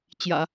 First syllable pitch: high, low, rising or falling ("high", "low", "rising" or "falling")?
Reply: low